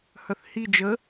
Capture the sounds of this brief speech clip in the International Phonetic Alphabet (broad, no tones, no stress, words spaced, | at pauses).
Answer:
hœθhi d͡ʒə